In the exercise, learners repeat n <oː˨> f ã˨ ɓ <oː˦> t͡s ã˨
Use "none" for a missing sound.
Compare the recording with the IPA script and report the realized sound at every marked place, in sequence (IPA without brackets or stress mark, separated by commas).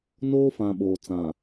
oː˦, oː˨